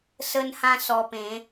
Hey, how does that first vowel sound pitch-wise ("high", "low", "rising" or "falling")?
high